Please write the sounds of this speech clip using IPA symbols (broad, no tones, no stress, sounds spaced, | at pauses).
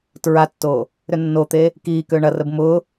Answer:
t ɹ a tː o | ɾ ʏ nː o t̪ e | k iː k ø ɳ ɐ r ə b m ʊ